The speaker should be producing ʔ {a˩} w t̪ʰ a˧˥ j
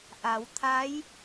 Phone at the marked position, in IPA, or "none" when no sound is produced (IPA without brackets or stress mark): a˩˧